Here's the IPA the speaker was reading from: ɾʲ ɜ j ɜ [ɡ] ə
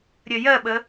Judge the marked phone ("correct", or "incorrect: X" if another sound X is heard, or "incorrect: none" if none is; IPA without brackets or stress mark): incorrect: ɓ